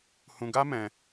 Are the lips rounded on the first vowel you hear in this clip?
yes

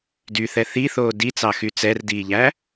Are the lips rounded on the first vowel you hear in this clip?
yes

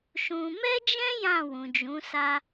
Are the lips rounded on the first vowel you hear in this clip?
yes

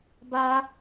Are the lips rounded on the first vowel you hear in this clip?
no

